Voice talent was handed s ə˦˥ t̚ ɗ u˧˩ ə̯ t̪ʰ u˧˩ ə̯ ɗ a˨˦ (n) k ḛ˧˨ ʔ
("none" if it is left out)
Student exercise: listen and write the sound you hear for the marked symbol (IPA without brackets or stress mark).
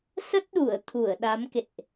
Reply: m